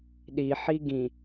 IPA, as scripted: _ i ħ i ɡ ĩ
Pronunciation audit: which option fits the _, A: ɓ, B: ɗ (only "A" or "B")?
B